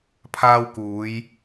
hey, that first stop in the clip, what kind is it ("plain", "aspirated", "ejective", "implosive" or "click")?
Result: aspirated